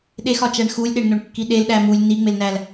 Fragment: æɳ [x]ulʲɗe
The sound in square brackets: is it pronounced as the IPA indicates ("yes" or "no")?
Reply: yes